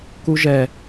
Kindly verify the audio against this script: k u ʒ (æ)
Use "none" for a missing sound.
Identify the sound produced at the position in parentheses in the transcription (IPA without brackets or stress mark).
ɛ